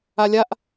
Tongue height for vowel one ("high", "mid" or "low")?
low